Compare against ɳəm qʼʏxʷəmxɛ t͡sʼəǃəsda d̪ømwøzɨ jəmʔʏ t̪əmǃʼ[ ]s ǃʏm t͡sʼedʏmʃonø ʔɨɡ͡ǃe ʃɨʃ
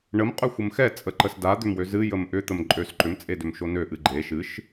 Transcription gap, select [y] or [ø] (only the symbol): ø